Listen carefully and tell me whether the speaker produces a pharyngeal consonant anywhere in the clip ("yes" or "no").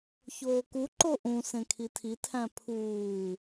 no